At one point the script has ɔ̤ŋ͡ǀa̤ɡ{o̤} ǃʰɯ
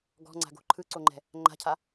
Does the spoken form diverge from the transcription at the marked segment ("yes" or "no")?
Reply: no